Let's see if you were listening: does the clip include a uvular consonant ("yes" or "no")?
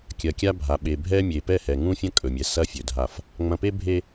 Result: no